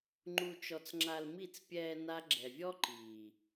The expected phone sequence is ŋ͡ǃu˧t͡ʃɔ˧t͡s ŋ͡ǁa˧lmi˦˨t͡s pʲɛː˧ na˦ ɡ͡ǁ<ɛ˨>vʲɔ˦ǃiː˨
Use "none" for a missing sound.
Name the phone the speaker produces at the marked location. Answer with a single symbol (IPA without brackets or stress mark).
ɛ˨